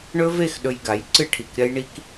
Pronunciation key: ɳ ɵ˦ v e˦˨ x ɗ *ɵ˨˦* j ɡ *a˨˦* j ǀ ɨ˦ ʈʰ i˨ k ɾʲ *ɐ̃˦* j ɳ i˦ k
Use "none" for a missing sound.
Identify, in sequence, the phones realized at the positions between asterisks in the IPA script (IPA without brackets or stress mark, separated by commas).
ɵ˧, a˨˦, ɐ˦